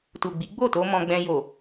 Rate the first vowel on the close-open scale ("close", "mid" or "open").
close